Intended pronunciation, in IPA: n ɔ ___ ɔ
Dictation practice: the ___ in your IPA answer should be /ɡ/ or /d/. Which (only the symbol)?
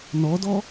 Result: d